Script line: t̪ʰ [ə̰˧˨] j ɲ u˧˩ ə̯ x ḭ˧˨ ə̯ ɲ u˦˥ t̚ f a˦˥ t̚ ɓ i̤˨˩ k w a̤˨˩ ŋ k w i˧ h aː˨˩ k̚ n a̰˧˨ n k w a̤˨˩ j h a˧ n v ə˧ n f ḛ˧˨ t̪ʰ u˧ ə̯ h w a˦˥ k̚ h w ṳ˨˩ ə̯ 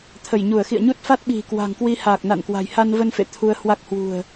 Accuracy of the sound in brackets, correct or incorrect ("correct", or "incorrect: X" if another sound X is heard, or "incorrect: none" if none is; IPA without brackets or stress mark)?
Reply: incorrect: ə˧˩